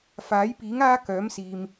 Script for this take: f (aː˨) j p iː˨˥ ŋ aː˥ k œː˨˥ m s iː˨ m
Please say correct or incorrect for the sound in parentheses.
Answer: incorrect